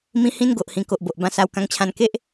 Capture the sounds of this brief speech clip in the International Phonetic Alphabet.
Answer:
m ĩ˧ h ĩ˦ n ɡ o˨ ʔ h ĩ˨˩ k o˨ ʔ b o˨ ʔ b ã˧ s a˧ w k ã˧ ŋ t͡ɕʰ ã˧ n k e˦ ʔ

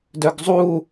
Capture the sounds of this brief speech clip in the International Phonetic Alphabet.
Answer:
d œ ɡ zˤ u

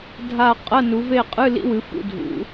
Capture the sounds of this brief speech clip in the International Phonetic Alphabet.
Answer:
dʱ a˦˨ qʼ ɐ˧˥˧ n u˩˧ v e˦˨ qʼ ɨ˧˥˧ l ḭ˦˥ w ɨ˩˧ f ṵ˦˨ dʱ ṵ˩˧

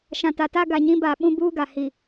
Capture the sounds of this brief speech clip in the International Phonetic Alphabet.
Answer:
ʃ ã˨ t a˨ t a˦ ɡ a˨ ɲ ĩ˦ b a˨ ɓ ũ˦ b uː˦ ɡ a˨ h i˨

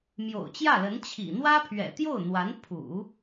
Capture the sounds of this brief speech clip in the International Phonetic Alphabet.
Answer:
m j o̰˨˩ ʊ̯ t͡ɕ j ä˥˩ l ə˧˥ n t͡ɕʰ ḭ˨˩ n̪ w ä˥ pʰ ɥ ɛ̰˨˩ t̪ j o˥˩ ʊ̯ n̪ w a˧˥ n pʰ ṵ˨˩˦

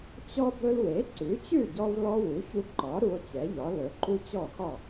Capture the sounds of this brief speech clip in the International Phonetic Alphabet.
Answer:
t͡ɕ ɔ˥ b ɵ˧ l w e˩˥ ǀ ʉ˩˥ t͡ɕ ʉ˥˩ ɟ ɔ˧ v l ɔ˧ w u˩˥ ç u˧ ǃ ɒ˩˥ ɾ u˧ o̯ t͡ɕ ɛ˩˥ ʎ ɒ˩˥ l ɵ˩˥ ǃ u˥ t͡ɕ ɔ˥˩ x ɒ˥˩

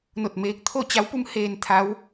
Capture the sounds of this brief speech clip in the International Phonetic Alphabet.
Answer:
n o˧˩ t̚ m eː˧ k̚ t̪ʰ o˥˨ t͡ɕ a˧˥ w p u˧˥ m h eː˧ n t̪ʰ a˧˥ w

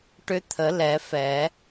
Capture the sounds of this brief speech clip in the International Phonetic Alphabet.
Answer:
ʈ ʏ˧˥ t̪ʰ ə˨˩˦ l ɛ˨˩˦ f ɛ˨˩˦

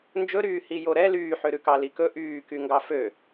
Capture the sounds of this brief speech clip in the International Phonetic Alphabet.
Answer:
n d͡ʒ ɵ ɾ yː h i j o ɾ ɛ l yː ħ ø ɾ ʉ k ɑ l i k ɵ ʔ yː k y ŋ ɡ ɑ f ø

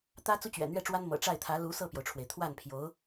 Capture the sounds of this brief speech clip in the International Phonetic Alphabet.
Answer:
t̪ ä˥ t͡s u˥ t͡ɕ ɥ ɛ̰˨˩ n̪ ɥ ɛ˥˩ ʈ͡ʂ w a˥ n m ɤ̰˨˩ ʈ͡ʂ a˥˩ ɪ̯ t̪ʰ ä˧˥ l u˧˥ s ɤ˥˩ p j o˩ ʊ̯ ʈ͡ʂʰ w e˩ ɪ̯ t̪ʰ w a˥˩ n pʰ j o˧˥ ʊ̯

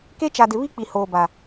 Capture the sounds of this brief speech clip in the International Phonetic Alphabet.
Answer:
k e˦ t͡ʃ a˨ d ɪ˨ β i˦ k͡p i˨ h oː˨ b a˨

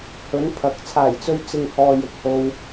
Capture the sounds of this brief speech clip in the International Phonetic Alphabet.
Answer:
h ɵ˨˥ n pʰ ɐ˨˥ k̚ t͡sʰ aː˨˩ j t͡s ɵ˧ ɥ t͡s ɪ˨ ŋ h ɔː˨ j ɪ˨ k̚ h o˧ w

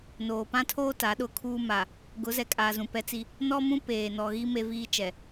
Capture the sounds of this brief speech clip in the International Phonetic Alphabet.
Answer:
n oː˨ p ã˦ tʰ oː˦ t a˨˦ ɗ ʊ˦ kʰ uː˦ m a˨ | ɡ ʊ˨˦ z ɛ˨ kʼ aː˨ z ũ˨ p ɛ˦ t͡s i˦ | n ɔ˦ m ũ˦ p eː˨ n ɔ˨ ɣ i˦ m e˦ v iː˦ t͡ʃ ɛ˨

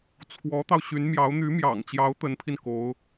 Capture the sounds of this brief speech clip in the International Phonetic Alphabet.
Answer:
t͡sʰ w ɔ˧˥ t̪ ɑ˧ ʊ̯ ɕ y˧˥ n m j ɑ˧˥ ʊ̯ n̪ y˧˥ m j ɑ̰˨˩ ŋ t͡ɕ j ɑ˧˥ ʊ̯ t̪ ə˧˥ n pʰ i˧ n k o˧˥ ʊ̯

